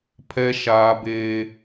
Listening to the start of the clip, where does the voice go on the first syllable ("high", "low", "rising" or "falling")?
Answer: high